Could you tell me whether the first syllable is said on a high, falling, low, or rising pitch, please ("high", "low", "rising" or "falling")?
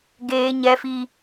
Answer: low